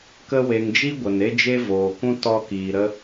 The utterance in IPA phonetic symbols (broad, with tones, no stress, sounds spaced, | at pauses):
k ə˧ w e˨ ŋ d͡ʒ i˦ ɡʷ ə˨ n e˦ d͡ʒ e˦ v oː˨ k ũ˦ t ɔ˧ k iː˨ ɾ ə˦